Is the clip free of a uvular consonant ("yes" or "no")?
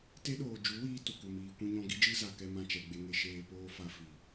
yes